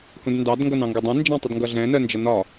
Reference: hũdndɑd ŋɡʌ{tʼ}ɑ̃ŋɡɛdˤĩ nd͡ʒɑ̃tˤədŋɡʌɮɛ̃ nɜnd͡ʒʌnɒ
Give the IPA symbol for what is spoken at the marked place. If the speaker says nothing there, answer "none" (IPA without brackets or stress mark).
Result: n